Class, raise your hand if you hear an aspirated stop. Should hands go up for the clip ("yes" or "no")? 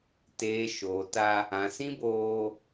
no